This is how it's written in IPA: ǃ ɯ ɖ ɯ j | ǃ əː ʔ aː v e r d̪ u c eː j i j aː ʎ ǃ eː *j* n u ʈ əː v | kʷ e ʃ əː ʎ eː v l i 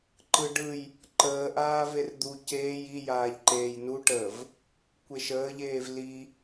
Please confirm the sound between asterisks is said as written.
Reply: yes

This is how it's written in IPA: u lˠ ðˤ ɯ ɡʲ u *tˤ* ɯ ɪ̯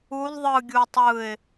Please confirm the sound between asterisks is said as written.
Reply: yes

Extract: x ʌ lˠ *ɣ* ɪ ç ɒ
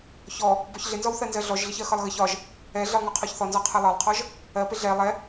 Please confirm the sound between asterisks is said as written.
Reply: yes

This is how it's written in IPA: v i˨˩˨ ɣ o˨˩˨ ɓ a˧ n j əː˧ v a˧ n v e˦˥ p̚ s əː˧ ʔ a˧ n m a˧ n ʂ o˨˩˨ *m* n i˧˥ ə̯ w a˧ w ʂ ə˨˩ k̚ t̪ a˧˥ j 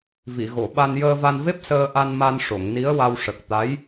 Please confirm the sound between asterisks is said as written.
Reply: no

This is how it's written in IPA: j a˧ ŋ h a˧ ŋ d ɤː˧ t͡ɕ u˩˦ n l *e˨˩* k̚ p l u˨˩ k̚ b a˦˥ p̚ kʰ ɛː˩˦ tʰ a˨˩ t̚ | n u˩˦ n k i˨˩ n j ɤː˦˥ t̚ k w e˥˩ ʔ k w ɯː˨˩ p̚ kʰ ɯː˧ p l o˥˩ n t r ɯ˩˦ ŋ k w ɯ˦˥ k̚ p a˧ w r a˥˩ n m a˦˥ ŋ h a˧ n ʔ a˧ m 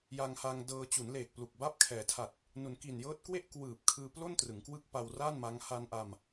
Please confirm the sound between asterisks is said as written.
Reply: no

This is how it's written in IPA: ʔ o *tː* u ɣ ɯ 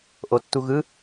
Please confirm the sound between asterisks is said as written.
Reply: yes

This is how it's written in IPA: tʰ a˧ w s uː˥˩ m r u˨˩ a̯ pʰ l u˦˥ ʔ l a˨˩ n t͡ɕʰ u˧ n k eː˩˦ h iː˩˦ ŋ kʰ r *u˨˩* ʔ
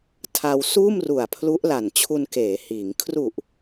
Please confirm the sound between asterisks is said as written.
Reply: yes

